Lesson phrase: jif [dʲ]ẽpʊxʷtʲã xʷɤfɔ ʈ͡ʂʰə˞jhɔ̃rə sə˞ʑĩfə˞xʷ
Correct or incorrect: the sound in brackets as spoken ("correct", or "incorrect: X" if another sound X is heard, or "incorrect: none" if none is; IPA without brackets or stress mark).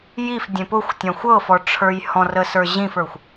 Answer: correct